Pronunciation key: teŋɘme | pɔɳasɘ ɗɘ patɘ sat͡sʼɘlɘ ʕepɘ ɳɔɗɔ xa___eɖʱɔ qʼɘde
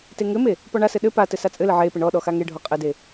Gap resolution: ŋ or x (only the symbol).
ŋ